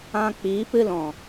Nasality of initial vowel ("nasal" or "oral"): nasal